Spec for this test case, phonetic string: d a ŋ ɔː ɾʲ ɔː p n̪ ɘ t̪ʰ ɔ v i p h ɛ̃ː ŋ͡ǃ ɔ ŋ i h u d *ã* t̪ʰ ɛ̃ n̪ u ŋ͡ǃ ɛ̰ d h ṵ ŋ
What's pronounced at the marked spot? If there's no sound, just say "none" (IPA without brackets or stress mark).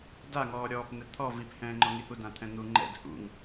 ã